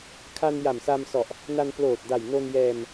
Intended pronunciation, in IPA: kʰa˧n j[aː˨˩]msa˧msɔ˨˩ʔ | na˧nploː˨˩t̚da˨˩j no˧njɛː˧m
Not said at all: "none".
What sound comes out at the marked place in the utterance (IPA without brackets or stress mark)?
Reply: a˨˩